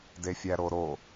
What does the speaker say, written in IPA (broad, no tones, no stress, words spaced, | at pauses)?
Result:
defʲæɾoɾo